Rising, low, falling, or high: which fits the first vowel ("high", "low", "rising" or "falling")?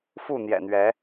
falling